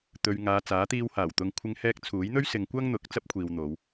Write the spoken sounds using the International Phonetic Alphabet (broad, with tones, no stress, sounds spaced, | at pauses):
t̪ ɵ˨ ɥ ŋ aː˨ t͡s aː˨˥ t̪ iː˧ w h aː˨˩ w t̪ ʊ˧ ŋ kʷʰ ɪ˧ ŋ h ɛː˧ k̚ t͡sʰ uː˨˥ j n̪ ɵ˥ ɥ s ɪ˨˧ ŋ kʷ ɐ˥ ŋ n̪ ʊ˨˥ k̚ t͡s ɐ˥ p̚ kʷʰ iː˨ w n̪ o˨˧ w